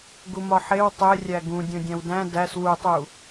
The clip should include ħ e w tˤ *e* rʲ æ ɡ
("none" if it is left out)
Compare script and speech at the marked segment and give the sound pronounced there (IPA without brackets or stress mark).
e